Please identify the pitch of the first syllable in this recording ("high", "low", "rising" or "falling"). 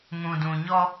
low